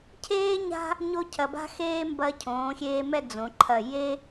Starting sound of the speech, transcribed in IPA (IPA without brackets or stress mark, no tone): cʰ